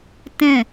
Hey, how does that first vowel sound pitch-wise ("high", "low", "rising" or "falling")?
falling